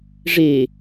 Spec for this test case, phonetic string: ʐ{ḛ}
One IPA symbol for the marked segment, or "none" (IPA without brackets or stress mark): e